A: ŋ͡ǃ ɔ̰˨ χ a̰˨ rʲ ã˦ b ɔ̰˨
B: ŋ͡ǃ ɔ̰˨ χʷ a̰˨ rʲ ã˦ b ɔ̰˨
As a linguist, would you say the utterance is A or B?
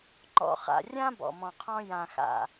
A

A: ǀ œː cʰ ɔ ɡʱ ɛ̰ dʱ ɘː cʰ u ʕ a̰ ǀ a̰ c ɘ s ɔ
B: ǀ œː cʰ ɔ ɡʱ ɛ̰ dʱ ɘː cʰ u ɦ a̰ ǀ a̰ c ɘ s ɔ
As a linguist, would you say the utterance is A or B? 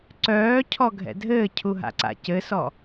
B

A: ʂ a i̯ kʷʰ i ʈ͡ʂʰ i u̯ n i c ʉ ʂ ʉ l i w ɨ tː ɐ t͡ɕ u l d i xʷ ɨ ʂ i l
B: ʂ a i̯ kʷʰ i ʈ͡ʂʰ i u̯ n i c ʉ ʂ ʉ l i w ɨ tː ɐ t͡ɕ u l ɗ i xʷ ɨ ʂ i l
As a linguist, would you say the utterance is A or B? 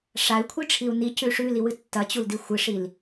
A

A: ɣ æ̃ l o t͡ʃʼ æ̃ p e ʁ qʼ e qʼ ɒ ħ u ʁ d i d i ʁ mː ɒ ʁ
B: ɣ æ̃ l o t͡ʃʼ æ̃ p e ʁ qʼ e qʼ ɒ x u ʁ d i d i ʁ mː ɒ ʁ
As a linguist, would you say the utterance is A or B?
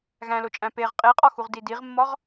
B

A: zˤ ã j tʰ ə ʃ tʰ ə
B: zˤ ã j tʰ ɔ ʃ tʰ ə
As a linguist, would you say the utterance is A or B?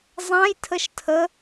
A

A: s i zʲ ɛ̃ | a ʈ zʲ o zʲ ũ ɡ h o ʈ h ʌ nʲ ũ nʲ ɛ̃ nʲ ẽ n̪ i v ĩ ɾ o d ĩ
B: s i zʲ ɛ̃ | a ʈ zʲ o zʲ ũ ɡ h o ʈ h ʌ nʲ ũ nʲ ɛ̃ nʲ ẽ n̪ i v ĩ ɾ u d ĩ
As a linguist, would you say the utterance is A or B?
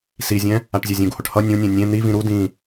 B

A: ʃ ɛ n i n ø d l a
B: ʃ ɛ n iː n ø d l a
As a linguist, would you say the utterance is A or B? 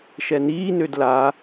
B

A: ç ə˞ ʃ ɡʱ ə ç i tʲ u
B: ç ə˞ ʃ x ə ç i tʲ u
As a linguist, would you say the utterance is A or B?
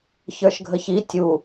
A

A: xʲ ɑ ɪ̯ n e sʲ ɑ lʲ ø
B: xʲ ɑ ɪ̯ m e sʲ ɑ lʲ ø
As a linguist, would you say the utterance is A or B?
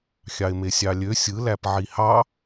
B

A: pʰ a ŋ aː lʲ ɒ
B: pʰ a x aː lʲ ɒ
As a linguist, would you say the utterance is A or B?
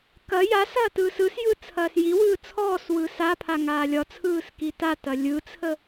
A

